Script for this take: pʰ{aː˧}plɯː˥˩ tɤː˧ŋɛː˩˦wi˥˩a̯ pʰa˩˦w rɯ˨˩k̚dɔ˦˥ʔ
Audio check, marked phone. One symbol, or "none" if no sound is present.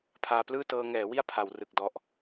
aː˧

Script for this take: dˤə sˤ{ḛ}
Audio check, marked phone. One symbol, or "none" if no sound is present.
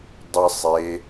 e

